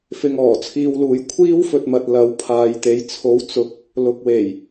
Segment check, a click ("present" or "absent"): absent